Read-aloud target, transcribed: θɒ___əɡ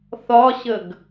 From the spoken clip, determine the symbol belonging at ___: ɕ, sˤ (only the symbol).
ɕ